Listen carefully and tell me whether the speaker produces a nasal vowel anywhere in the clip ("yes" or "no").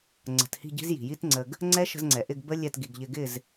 no